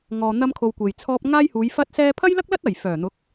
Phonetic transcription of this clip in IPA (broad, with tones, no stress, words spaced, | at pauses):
ŋɔː˨ n̪ɐ˥mkʰo˧wkʷe˨jt͡sʰɔː˥p̚ ŋaː˥jhuː˨˧jfɐ˥t̚sɛː˥ pʰɐ˥jlɐ˥k̚lɐ˥t̚ ɐ˨˩j fœː˨˩n̪ʊ˨˥k̚